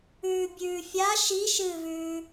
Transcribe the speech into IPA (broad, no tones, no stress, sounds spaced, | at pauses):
ʉː bʲ ʉː fʲ a ʃ i ʃ ɨː v ʉː